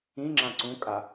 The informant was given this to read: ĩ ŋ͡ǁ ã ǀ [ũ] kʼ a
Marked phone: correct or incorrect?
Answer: correct